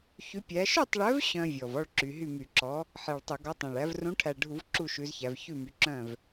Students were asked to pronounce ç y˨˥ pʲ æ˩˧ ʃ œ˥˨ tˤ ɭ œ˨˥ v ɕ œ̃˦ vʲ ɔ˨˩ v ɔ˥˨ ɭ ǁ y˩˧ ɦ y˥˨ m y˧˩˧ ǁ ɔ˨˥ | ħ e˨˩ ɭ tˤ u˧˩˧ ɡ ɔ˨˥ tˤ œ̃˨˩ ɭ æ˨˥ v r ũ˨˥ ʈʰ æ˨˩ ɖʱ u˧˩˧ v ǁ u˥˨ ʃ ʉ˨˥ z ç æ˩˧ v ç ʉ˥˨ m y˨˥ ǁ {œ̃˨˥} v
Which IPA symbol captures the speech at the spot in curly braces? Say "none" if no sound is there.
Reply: œ̃˥˨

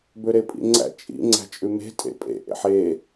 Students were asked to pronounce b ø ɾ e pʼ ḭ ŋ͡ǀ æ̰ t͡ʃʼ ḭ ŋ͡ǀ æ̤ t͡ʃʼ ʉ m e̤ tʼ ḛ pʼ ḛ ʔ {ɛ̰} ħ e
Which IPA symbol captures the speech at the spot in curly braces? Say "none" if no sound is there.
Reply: ḛ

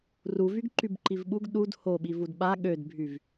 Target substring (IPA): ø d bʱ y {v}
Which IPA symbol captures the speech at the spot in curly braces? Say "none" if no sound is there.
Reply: v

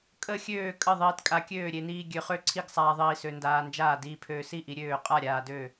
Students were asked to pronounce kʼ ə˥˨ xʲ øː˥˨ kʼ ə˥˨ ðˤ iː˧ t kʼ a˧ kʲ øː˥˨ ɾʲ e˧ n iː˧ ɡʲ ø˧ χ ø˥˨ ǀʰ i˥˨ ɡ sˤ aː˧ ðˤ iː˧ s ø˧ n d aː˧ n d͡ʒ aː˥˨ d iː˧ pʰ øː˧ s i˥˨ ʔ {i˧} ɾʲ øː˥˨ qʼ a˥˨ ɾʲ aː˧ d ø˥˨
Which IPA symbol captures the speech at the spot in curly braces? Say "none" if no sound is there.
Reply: i˧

